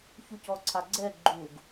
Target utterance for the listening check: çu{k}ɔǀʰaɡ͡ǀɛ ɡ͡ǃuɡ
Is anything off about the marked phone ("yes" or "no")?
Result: yes